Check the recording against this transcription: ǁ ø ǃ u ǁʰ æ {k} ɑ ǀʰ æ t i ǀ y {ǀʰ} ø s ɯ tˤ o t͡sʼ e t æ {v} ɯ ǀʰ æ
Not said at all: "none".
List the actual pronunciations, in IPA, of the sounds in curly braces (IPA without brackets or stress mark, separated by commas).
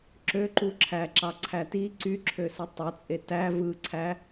ǁ, ǁʰ, v